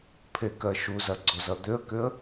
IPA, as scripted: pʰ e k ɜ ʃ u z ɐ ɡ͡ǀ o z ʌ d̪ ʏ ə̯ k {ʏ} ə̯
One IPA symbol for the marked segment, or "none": ʏ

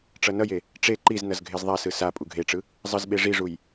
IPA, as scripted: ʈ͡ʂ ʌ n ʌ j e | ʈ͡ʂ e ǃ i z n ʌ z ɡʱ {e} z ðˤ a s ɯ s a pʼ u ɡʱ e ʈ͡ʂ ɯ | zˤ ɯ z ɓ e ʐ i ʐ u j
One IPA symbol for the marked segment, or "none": e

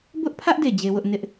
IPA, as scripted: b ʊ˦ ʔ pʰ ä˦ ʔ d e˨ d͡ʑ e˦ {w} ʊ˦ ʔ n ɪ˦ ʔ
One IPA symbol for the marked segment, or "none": w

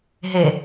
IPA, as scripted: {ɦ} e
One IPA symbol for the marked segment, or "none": ɦ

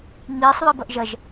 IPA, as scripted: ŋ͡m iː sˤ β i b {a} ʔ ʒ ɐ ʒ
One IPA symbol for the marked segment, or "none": ɐ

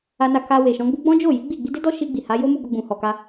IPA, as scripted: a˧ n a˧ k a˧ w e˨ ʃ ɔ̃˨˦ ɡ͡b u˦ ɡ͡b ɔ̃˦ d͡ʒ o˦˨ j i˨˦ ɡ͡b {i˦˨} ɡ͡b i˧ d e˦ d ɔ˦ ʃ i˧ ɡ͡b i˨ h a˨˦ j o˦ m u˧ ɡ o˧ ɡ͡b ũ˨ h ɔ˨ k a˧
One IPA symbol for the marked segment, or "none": i˦˨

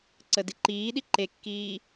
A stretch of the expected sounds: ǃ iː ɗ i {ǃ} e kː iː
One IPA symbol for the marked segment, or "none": ǃ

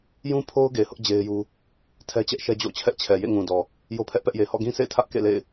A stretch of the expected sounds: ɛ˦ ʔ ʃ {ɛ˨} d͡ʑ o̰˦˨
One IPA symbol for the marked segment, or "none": ɛ˦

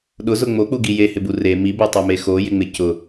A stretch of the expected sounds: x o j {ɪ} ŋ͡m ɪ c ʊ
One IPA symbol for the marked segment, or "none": ɪ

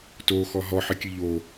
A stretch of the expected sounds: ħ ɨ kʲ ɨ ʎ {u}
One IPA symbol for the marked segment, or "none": o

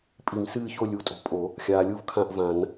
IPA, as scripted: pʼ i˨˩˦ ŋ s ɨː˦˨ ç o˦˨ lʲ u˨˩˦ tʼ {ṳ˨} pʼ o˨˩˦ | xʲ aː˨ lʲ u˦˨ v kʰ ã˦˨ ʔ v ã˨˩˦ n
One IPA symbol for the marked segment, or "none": o̤˨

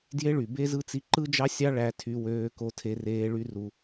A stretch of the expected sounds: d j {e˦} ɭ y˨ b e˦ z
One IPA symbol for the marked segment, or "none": e˦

